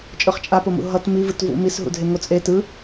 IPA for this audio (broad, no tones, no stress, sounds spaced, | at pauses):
t͡ʃʼ ɯ χ t͡ʃʼ a p o m ṵ ɦ ʌ t m i v ɯ t v ṵ m i s ɦ ṵ dʱ e ŋ o t͡sʼ e t ɯ